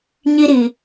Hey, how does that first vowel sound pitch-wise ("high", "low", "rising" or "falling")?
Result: high